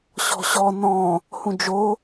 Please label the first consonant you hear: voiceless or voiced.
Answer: voiceless